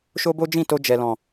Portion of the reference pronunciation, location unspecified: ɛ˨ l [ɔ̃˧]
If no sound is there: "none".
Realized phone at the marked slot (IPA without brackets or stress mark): ɔ̃˨